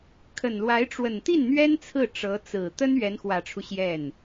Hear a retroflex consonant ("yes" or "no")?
yes